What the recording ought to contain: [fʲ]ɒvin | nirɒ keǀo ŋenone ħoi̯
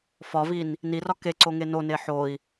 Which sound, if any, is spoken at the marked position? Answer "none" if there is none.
f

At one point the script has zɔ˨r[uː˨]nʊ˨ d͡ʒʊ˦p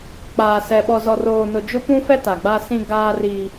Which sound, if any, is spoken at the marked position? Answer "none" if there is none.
oː˨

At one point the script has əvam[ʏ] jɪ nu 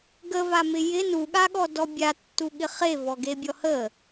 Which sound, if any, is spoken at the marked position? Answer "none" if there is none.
ɪ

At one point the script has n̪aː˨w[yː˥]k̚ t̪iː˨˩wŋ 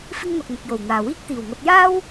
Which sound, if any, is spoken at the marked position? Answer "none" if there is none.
iː˥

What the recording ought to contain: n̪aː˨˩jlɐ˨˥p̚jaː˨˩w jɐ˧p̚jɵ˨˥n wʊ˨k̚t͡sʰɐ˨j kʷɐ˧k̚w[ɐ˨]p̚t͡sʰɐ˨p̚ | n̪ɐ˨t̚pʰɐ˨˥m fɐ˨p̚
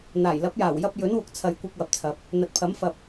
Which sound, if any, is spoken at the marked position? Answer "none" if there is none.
ɐ˨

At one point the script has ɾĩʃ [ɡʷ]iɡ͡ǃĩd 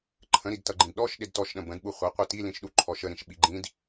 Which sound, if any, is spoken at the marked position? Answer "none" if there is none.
ɓ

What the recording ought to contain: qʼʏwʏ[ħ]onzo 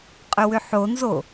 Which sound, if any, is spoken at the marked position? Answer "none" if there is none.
ħ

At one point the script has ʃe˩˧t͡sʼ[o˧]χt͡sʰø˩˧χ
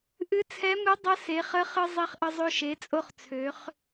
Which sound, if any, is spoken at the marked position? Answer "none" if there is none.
o˧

